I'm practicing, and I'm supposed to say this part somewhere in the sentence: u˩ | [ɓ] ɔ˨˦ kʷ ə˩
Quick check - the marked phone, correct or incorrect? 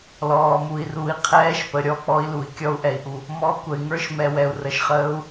incorrect